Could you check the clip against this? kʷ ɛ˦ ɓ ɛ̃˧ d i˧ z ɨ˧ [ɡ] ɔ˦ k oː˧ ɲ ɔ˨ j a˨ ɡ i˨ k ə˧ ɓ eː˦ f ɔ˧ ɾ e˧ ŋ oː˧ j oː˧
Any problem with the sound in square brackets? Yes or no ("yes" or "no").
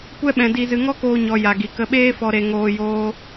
yes